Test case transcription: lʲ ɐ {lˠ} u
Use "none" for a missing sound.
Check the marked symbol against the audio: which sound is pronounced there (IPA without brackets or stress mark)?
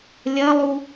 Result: lˠ